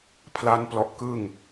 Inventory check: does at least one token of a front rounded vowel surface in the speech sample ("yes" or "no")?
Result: no